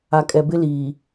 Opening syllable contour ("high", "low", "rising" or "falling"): low